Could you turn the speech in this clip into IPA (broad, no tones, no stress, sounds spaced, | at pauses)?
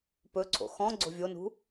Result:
p ɵ ǀʰ o̰ x ɔ̃ ɡ͡ǀ o̤ vʲ o n ṳ